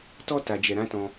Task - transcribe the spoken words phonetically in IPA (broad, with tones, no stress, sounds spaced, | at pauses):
t ɔ˦ t a˧ d͡ʒ ɛ˧ ɾ ã˦ t ɔ̃˧